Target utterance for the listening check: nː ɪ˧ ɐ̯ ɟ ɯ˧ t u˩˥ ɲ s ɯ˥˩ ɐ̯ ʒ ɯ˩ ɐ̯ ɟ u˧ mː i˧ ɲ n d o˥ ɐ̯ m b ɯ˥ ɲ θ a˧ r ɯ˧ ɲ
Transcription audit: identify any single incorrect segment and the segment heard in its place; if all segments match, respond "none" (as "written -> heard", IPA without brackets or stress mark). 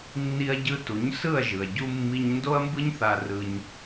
ɪ˧ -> i˧